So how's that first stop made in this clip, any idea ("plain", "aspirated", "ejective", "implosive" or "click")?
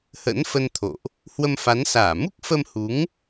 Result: aspirated